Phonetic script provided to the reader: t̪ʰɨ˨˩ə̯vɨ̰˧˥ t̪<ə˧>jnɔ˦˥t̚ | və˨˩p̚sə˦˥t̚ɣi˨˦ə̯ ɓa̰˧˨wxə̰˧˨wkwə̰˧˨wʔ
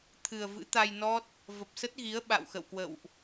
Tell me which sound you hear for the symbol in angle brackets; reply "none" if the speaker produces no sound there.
a˧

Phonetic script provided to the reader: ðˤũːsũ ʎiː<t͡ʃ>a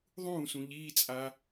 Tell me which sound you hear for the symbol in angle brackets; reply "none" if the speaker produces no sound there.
t͡sʼ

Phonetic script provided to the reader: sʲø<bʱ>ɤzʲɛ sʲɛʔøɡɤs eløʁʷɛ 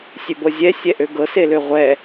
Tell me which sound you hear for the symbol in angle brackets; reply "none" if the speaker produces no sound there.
b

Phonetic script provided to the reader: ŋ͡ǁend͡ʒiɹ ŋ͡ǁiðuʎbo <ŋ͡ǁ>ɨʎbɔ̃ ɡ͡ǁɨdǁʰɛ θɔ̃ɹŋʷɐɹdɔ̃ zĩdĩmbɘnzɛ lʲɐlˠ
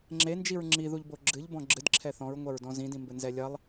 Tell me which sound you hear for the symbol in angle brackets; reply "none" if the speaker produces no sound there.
ɡ͡ǁ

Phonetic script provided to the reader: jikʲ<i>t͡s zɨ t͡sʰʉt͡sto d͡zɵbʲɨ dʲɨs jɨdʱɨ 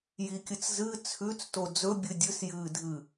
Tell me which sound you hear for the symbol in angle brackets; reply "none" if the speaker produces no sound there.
ɨ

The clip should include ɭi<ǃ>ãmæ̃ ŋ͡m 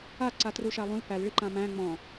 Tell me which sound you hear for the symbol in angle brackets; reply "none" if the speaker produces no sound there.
ǃ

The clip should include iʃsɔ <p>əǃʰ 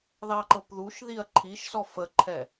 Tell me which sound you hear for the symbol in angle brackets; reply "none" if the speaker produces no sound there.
f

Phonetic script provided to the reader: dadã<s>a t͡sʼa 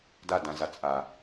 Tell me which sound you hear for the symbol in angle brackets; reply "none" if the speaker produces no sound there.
z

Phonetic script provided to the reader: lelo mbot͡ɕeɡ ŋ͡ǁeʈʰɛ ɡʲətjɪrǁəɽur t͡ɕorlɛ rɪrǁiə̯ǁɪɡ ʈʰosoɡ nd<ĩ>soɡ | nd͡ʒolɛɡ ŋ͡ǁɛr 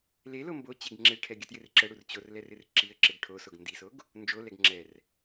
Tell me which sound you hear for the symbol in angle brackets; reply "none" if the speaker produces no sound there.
i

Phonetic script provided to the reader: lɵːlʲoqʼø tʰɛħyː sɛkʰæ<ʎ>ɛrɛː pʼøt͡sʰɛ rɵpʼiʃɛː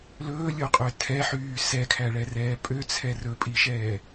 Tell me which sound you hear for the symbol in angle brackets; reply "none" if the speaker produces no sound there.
ɭ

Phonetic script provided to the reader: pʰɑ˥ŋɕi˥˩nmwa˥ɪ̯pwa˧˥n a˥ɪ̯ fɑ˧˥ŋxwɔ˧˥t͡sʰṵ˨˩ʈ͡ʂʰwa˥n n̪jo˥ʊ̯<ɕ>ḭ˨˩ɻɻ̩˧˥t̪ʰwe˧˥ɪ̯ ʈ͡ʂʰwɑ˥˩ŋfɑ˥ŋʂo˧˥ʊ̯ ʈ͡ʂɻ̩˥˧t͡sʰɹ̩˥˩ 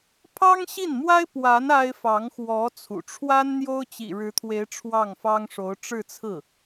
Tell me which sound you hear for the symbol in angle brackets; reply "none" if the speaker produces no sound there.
t͡ɕ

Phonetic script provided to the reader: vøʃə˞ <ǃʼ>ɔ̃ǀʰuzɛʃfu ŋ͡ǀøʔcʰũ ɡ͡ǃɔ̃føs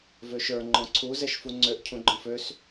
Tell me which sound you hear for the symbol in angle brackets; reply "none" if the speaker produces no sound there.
ŋ͡ǃ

